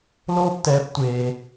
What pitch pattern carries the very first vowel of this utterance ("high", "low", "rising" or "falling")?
high